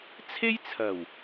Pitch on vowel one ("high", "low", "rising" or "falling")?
high